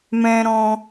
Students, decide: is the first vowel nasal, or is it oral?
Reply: nasal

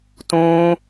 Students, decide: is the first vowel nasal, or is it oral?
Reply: nasal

